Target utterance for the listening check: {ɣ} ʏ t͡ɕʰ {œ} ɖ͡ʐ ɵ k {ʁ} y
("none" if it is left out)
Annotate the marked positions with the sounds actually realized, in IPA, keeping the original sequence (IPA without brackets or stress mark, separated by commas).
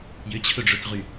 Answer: j, ɵ, ʁ